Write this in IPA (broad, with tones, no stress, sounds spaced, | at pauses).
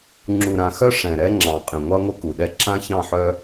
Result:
ŋ͡ǁ u˨ ɾ ã˨ x œ˦ ʂ ɛ̃˨ ɾ ɛ˦ ŋ͡ǁ ɑ̃˨ qʼ ɛ̃˨ ŋʷ ɑ˦ ŋʷ ə˦ k u˨ ɗ ɛ˦ ǁ ã˦ ç ɑ̃˦˨ ħ œ˦